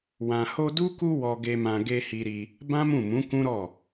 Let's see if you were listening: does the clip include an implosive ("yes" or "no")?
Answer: no